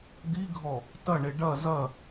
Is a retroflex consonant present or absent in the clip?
present